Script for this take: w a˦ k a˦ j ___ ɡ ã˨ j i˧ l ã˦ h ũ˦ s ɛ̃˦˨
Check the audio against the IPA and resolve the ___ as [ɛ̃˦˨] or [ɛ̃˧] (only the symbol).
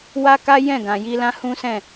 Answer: ɛ̃˦˨